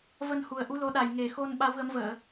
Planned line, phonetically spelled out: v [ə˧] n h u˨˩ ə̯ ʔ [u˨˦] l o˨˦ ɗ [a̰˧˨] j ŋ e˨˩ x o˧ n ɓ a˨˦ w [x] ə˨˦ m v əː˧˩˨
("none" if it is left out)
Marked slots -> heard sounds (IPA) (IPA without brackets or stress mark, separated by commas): ə˧, u˨˦, a˨˩, ɣ